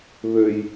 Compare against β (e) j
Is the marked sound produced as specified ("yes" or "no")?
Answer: no